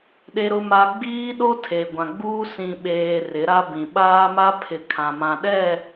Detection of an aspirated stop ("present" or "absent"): present